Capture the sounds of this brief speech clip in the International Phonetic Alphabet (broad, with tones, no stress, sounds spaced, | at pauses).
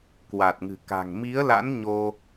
k w a˨˩ t̚ ŋ ɨ̤˨˩ k a̤˨˩ ŋ m i˨˦ ə̯ l a̰˧˥ n ɲ o˧